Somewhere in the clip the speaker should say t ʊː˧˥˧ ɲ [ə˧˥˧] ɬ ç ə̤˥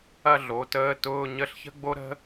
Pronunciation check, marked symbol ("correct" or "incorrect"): correct